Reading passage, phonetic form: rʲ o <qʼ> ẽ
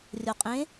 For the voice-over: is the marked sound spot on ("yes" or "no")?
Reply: yes